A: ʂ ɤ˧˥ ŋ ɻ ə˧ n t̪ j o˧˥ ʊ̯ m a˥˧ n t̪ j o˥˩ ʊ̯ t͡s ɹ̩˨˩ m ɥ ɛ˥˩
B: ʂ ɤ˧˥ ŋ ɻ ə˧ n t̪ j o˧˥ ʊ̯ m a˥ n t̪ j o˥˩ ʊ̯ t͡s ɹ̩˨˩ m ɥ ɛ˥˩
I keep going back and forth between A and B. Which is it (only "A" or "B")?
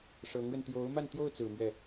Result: A